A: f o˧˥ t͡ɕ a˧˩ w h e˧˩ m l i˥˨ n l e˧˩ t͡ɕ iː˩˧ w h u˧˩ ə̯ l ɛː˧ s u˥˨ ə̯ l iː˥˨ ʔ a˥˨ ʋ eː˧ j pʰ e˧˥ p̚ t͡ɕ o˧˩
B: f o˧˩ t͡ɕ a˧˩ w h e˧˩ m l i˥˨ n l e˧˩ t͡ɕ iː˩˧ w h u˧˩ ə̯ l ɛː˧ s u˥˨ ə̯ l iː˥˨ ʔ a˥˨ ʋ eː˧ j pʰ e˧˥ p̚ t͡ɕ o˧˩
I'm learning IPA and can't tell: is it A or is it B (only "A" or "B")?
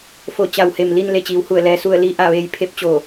B